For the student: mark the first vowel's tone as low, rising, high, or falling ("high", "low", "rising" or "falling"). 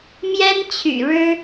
high